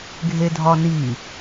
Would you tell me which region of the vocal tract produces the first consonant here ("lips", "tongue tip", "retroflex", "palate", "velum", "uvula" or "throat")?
velum